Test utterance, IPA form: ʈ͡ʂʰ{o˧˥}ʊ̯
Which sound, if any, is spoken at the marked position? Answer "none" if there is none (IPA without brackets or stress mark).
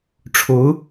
o˧˥